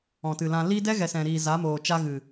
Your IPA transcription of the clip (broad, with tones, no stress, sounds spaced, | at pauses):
ɔ̃˨ t ɨ˨ l ã˧ l i˦ d ɛ˦ ɣ ɛ˨ s ɛ̃˨ ɾ iː˨ z a˨˦ m oː˨ t͡ʃ a˧ ɣ ɨ˨